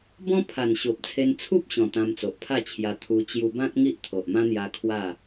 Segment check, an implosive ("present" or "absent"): absent